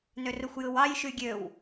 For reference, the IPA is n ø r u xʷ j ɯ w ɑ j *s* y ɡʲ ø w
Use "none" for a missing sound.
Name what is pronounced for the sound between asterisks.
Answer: ʃ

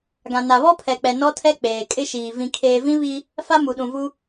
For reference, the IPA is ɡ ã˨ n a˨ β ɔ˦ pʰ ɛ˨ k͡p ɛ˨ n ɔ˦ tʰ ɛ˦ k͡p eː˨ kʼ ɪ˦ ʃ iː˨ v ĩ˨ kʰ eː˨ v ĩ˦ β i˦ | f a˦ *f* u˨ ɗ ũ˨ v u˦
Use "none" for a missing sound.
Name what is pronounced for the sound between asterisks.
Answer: m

